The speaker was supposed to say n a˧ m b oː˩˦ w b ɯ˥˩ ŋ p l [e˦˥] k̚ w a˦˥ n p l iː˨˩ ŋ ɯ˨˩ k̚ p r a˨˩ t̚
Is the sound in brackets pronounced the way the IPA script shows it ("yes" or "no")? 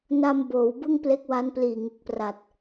yes